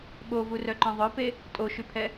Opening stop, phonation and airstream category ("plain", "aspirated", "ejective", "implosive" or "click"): implosive